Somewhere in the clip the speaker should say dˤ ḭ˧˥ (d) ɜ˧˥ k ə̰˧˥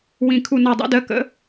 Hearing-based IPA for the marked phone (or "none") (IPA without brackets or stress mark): d